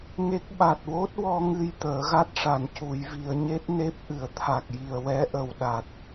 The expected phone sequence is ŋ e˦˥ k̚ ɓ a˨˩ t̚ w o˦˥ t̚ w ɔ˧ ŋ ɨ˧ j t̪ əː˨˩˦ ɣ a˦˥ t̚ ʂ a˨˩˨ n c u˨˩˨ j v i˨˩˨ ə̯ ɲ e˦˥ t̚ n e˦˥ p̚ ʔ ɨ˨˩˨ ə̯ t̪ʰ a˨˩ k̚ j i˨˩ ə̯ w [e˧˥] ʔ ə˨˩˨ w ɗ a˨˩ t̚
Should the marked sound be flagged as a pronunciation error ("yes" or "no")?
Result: yes